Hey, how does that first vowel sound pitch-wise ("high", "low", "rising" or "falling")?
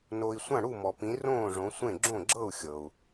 low